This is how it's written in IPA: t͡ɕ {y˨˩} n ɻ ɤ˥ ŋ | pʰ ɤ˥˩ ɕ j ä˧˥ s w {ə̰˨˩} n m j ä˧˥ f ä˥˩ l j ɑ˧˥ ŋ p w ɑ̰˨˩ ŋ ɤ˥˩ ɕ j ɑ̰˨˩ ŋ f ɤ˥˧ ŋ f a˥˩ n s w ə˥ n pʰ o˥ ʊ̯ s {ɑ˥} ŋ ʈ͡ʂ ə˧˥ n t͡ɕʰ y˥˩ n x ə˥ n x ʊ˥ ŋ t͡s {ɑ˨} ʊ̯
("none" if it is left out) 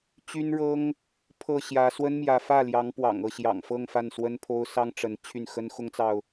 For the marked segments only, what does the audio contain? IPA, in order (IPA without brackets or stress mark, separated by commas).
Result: y˥, ə˥, ɑ˥, ɑ˨